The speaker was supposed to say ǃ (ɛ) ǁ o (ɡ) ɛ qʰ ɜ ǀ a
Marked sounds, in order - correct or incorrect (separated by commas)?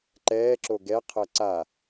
incorrect, correct